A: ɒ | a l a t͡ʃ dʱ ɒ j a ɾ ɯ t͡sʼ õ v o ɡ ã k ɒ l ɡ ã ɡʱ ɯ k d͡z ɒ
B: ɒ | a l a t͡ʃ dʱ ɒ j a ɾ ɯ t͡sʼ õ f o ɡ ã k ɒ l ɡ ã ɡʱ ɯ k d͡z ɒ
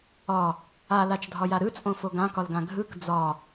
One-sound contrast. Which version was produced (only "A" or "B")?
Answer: B